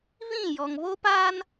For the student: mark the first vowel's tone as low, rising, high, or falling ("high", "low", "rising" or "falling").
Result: falling